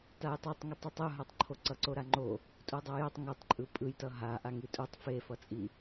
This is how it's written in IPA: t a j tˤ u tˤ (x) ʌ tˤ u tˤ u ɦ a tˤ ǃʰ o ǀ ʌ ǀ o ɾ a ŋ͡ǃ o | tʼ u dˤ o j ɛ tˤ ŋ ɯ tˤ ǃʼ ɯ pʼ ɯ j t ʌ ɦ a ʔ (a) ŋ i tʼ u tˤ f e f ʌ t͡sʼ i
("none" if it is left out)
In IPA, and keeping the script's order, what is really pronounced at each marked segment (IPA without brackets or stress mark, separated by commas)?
ŋ, a